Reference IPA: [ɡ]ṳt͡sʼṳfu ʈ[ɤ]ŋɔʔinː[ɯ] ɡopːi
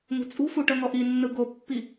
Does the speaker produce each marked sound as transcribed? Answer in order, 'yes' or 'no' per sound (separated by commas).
no, yes, yes